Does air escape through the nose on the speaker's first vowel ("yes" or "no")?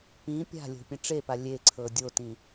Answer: yes